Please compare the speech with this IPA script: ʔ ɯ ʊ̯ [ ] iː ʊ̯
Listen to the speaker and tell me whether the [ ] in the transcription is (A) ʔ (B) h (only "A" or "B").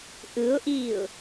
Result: A